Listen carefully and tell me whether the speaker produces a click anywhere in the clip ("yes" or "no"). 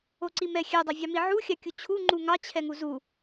yes